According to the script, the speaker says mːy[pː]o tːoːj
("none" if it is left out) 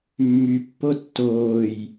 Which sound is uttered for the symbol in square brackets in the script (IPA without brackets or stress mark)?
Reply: pː